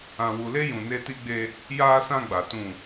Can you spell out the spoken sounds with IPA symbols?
ã˨ w u˨ l e˦ j ũ˨ n e˦ t i˦ ɡ͡b e˦ | j aː˦ s ã˦ ɡ͡b a˨ t ũ˦˨

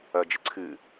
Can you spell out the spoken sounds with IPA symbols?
ɐ d͡ʒ ɨ ǀʰ ɨ

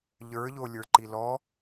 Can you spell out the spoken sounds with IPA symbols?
ʎ ə˞ ʎ o lʲ ə˞ ǃ i l ɔ

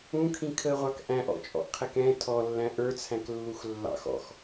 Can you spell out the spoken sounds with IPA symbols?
ũ kʰ ĩ kʰ ə ʁʷ ɑ k ʔ æ̃ ʔ ɔ̰ t͡ʃʼ ɔ̰ ʔ qʰ ɛ k ɛ̃ tʰ ɔ lː æ̃ ʔ ə˞ t͡sʰ æ̃ k lː u x lː ɑ̰ x ɔ̰ x

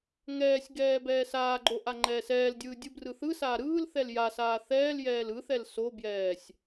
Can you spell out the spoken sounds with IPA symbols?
ŋ ɛː sʲ ɡ ɛː b ɛː s aː ɡ͡ǃ o ʔ a ŋ͡ǃ ɛː s ɛː l dʲ ɯː dʲ ɯ b r ɯ θ ɯ s aː ɾ ɯː l θ ɛ l j a s aː θ ɛː l j ɛː l ɯ θ ɛ l s o b j ɛː sʲ

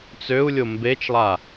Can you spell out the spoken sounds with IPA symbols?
t͡s ø u̯ lʲ o m b e t͡ʃ lˠ a

